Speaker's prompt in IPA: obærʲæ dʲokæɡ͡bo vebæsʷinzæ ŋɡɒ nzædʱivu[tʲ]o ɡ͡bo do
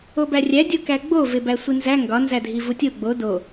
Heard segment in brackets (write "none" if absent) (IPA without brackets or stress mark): tʲ